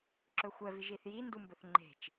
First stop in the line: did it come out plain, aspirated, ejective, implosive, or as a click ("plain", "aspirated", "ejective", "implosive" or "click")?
click